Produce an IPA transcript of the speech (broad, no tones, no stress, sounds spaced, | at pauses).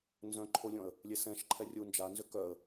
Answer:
n z œ̃ ǃʰ o lʲ ɔ̃ ə̯ | lʲ e s ɛ̃ ʃ ǃʰ ɛ rʲ u n d͡ʒ a n z ʏ k œ ə̯